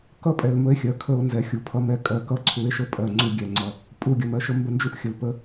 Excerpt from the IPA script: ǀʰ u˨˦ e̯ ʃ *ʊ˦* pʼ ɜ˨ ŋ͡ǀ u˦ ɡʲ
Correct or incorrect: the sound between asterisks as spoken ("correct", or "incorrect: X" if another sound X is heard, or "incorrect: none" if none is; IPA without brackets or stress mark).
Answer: incorrect: ə˦